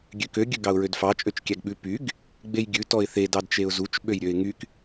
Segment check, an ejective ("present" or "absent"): present